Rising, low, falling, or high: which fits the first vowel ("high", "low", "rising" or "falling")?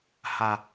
low